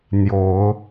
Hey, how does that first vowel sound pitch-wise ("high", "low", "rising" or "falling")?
rising